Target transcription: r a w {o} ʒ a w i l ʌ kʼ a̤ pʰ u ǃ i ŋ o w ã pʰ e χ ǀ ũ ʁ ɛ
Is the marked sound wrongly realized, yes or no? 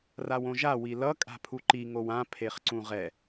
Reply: yes